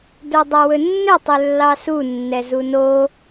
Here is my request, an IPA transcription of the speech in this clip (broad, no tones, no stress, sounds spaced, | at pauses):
d ə˞ dˤ a w ɵ nː ɵ tˤ ɵ lː ɑ s u nː ɛ z u n o